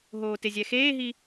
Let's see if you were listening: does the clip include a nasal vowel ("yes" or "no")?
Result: no